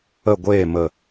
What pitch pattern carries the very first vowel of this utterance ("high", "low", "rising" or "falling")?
falling